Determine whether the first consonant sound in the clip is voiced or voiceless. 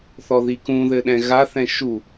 voiceless